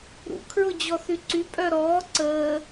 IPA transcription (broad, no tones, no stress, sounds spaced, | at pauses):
ɾ ṵ kʰ ɹ ʊ d͡ʑ ɔ θ y ǀ y pʼ œ ɾ ɔː ǀ əː